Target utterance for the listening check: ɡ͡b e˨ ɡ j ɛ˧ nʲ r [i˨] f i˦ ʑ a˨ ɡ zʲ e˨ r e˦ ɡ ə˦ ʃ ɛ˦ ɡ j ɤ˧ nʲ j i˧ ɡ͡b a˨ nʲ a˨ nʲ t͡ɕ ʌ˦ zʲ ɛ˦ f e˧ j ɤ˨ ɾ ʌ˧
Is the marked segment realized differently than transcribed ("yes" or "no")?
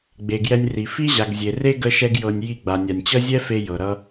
no